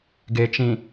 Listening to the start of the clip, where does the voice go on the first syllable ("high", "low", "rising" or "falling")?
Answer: low